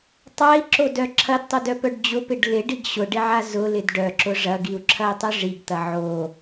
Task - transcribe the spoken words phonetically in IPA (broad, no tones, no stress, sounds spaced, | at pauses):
tˤ a i̯ ǁ o d œ ǁʰ ɐ d tˤ ʊ d œ p œ ɖ d͡ʑ ʊ p ɪ ɖ l ɪ ɖ i ɡ ɕ ʊ ɖ ɪ ʕ a z ʊ l ɪ d ɖ œ ǁ ʊ ʐ ɐ ɡ i u̯ ǁʰ ɐ i̯ tˤ ʊ ʐ i ɡ t̪ ɐ ʕ o